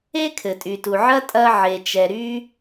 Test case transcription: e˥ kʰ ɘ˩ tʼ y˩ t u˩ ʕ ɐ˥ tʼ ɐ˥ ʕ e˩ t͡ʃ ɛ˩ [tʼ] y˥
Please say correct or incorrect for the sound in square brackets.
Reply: incorrect